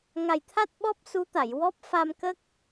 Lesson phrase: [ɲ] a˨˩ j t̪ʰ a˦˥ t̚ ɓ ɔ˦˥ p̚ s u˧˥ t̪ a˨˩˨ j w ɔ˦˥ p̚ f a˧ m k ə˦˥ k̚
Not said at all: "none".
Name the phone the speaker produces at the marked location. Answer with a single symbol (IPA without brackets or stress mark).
ŋ